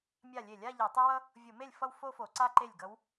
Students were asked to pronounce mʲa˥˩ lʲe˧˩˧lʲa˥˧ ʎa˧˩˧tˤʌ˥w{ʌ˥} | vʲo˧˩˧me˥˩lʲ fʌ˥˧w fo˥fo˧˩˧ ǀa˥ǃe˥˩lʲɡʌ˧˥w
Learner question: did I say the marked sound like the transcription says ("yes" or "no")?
yes